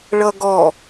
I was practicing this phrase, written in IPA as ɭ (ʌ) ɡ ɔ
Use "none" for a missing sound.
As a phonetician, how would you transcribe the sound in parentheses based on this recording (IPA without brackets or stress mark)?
ʌ